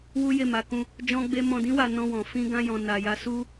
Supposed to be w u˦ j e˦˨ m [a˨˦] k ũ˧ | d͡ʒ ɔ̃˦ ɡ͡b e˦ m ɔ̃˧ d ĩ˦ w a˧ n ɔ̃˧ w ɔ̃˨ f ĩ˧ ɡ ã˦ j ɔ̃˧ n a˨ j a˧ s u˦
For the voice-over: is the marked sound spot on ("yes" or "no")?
yes